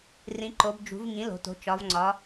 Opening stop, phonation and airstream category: click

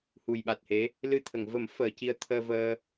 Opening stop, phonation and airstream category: implosive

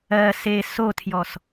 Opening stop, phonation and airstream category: aspirated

